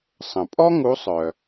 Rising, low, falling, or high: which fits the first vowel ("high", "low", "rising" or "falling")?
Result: low